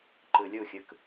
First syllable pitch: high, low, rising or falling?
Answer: low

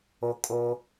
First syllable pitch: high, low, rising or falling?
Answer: high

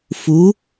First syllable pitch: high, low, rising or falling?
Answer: rising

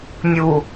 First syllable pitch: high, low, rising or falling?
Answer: low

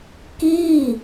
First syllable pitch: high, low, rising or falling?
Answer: falling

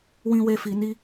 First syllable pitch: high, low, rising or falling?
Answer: high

